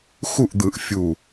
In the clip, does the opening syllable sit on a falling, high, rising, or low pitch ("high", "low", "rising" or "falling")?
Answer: falling